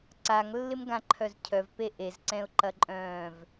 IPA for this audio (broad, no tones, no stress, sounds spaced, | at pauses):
ǀ a ŋ lː ɪ m ɡ ã ǃʰ œ z cʰ œ v p e ʔ e z ǀ ɛ̃ ʊ̯ ǃ ɐ ǃʼ œ̃ː v